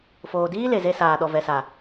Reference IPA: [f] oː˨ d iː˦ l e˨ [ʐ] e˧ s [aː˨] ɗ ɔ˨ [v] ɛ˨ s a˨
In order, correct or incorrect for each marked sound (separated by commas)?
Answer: correct, incorrect, correct, correct